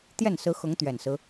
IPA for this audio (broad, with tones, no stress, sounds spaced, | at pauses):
t̪ j ɛ˥˩ n s ɹ̩˧˥ x ʊ˧˥ ŋ t̪ ɥ ɛ˨˩ n s ɹ̩˦